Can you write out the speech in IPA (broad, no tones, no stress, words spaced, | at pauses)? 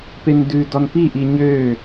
pendʉ dɔnpiʔi ɲø